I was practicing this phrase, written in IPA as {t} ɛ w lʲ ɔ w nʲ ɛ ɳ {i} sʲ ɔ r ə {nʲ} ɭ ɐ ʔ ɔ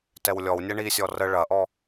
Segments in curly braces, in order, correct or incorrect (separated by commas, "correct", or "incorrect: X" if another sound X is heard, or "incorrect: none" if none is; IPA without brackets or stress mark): correct, correct, incorrect: none